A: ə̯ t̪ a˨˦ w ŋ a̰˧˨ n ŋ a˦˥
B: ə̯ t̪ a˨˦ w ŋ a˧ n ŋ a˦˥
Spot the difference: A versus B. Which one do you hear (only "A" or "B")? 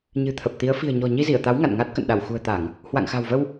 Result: A